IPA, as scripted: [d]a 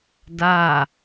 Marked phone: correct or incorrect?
correct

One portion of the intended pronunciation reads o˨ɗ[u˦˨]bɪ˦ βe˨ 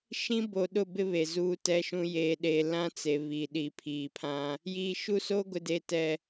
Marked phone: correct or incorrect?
incorrect: ʊ˦˨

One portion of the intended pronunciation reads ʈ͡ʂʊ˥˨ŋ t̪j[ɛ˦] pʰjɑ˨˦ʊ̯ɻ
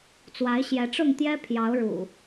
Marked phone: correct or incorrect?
correct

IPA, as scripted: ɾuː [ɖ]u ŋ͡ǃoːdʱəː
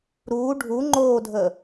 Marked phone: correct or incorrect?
incorrect: ɖʱ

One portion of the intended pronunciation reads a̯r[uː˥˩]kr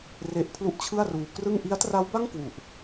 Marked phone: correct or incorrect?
incorrect: uː˧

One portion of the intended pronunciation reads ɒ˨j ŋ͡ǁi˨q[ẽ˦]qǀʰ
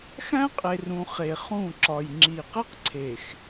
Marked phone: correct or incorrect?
incorrect: e˦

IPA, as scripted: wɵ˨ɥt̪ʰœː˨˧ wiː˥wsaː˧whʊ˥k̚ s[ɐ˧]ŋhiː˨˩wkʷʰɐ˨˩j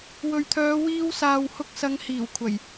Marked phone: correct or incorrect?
incorrect: ɐ˨˧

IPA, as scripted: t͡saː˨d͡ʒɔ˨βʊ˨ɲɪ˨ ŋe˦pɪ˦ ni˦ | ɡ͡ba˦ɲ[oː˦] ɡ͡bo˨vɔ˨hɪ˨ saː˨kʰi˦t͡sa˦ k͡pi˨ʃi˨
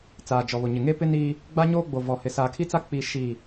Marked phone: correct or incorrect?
correct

